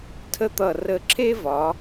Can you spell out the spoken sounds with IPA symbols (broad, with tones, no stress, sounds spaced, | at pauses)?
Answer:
tʰ ə˦ t̪ ʌ˧˩ r ə˧˩ ǁʰ e˦ v ɒ˩˧